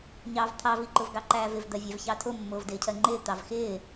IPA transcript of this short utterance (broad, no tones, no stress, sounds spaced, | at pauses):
ɲ ɑː v t̪ʰ ɑ v i ǃ ʊ v ɡ ɑ ǃ æː v ɪ v d̪ ɜ vʲ æ v ç ɑ tʰ ʊ mː ʊː v d ɪː cʰ ɜ ŋ͡ǃ ɪː t̪ ɑ v x ɪː